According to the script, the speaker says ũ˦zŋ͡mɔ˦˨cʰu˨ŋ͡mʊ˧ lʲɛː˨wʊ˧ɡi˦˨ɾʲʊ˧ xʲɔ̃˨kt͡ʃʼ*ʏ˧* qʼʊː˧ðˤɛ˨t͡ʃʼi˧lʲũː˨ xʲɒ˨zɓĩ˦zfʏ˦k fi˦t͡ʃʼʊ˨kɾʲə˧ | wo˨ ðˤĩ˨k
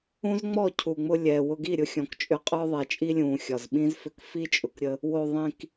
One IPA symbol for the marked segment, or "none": ʏ˧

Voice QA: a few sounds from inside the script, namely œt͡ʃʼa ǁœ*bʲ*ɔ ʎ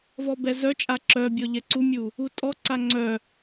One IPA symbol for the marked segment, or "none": bʲ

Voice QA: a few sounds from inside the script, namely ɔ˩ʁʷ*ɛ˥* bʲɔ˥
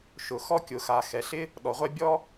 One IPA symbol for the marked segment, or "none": ɛ˥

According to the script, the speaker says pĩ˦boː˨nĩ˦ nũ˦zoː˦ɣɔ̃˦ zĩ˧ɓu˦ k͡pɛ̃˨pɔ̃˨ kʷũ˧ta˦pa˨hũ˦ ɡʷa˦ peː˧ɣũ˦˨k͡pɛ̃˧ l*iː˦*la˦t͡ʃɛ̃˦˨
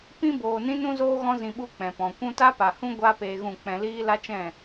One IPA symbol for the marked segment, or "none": iː˦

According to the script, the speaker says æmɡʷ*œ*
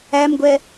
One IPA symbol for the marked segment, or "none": ɛ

